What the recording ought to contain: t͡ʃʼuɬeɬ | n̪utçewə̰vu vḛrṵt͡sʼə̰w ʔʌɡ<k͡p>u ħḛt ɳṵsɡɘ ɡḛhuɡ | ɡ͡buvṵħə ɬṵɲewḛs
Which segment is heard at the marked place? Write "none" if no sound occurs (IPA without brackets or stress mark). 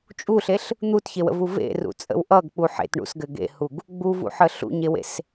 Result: k͡p